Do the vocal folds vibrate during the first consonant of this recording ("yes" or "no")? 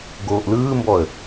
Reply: yes